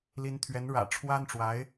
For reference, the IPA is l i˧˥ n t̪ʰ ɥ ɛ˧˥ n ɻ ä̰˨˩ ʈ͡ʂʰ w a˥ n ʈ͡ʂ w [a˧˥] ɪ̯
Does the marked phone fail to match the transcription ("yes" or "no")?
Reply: no